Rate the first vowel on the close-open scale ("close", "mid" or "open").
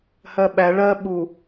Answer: mid